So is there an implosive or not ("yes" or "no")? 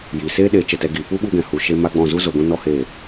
yes